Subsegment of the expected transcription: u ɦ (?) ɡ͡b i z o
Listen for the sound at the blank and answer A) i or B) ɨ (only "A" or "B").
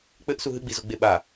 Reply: B